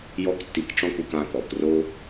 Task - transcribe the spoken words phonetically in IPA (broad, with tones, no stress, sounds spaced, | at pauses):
j ɔ˥ k tː i˧ k ʈ͡ʂ ɔ̃˥˧ k u˧ k ã˧ θ ɔ˩˧ k r o˥